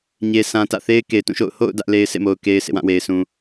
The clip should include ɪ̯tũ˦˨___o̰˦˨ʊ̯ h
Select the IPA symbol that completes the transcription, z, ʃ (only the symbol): ʃ